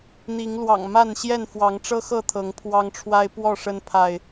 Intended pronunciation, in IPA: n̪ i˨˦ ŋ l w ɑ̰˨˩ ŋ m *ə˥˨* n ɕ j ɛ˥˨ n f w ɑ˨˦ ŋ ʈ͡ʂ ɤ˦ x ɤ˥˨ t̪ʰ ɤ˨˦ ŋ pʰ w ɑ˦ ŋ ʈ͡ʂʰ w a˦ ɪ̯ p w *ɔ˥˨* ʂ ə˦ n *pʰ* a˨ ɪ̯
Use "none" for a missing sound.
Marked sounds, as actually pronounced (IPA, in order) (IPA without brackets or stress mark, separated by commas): a˥˨, ɔ˥˨, pʰ